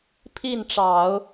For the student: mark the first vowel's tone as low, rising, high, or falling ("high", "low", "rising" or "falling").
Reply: falling